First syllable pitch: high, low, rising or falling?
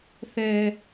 low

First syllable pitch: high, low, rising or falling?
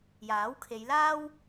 rising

